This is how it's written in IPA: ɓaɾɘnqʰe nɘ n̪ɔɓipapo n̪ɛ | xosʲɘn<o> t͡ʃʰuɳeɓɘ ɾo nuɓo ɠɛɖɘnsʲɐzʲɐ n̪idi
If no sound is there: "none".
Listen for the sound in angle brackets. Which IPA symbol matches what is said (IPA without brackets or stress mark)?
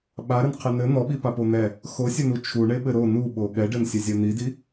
u